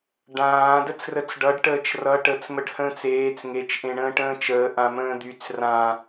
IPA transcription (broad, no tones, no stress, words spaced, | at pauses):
ɖãː dət͡srət͡sɖʌɖ ʈəːt͡ʃrʌ ʈət͡s məɖhə̃ːt͡seːt͡s ŋet͡ʃ ʔẽɳə̃ːʈə̃ːt͡ʃəː ʔãmə̃ːd̪yt͡s rã